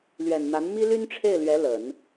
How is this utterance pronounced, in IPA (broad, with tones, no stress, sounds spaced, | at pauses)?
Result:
l ɥ ɛ˨˩ n n̪ a˧˥ n m i˥ l y˥ n ʈ͡ʂʰ e˥˩ ɪ̯ l ɥ ɛ˧˥ l ə˨˩˦ n